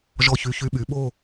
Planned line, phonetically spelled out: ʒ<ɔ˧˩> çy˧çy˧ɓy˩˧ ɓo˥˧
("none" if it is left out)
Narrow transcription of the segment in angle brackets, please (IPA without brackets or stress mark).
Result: ɔ˧˩